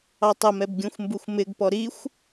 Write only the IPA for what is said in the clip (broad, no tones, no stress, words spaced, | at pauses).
ɑtˤəmɛb ɡʲũxʷmbuxʷmɪɡpɔ ɾixʷ